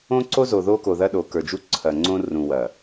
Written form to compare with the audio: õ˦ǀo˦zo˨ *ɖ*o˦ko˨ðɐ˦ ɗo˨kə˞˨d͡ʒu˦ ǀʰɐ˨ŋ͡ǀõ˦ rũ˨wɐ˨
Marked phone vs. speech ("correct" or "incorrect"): incorrect